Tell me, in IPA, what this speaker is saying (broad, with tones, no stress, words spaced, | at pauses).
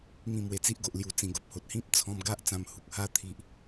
ŋĩ˥˧mwe˧t͡si˦ʔ ɡo˨ʔlju˨˩t͡sĩ˨˩ɡo˨p̚ ho˨t̚hĩ˦p̚t͡sʰɔ̃˧mɡa˦ʔ t͡sã˧mhu˨k̚ha˦ t̪ʰi˨ʔ